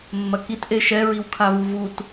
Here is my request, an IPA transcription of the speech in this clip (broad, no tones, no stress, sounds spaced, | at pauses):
mː ɐ k i t ʔ e ʃ ɛ ɹ i w kʰ a v u v u t